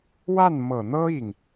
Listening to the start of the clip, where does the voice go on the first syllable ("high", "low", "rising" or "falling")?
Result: falling